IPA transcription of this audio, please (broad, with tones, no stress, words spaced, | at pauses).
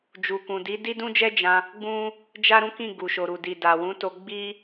d͡ʒu˨kũ˨di˨˦ di˦dũ˦d͡ʒɛ˦ d͡ʒã˧ | ɡ͡bũ˦ | d͡ʒa˦ɾũ˦kĩ˦˨ ɡu˨ʃo˨ɾu˨di˨ da˨wũ˨˦to˧ɡ͡bi˦